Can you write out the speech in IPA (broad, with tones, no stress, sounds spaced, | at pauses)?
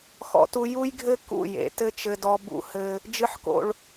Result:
x ɔ̰˦ t u˦ j u˦ j ɡʱ ɘ˦ k ṵ˦˨ j ḛ˨˦ t ɘ˦ t͡ʃ ɘ˦ d ɔ˦ b ṵ˦˨ h ɘ˦ | d͡ʒ ɨ˦ ħ k o̰˦ ɭ